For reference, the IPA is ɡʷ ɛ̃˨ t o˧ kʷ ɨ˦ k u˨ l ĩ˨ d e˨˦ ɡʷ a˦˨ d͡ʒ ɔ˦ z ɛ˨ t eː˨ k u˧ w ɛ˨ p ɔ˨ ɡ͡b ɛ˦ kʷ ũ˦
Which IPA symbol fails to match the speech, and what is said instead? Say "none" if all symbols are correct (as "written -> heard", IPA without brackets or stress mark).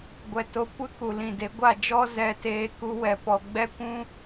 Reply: ɛ̃˨ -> ɛ˨